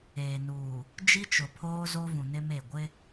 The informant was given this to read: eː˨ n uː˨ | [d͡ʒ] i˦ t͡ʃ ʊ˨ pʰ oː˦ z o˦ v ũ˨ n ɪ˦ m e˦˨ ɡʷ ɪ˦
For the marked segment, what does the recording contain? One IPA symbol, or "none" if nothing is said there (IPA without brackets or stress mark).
d͡ʒ